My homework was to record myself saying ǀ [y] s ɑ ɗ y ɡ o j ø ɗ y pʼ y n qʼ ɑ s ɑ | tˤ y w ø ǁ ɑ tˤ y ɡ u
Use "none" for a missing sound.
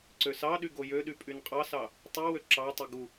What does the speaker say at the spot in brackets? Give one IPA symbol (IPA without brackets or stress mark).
ø